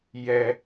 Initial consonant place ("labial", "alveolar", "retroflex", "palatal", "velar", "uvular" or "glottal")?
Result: palatal